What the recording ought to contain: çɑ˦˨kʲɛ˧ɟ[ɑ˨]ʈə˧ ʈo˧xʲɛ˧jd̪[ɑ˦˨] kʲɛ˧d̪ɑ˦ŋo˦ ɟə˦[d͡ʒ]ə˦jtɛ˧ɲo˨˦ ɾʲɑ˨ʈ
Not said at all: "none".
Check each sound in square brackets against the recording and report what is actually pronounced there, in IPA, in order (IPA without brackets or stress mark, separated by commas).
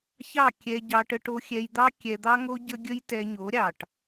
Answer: ɑ˧, ɑ˦, ɡʲ